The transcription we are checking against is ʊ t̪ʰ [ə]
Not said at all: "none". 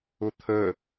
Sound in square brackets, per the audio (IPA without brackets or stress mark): ə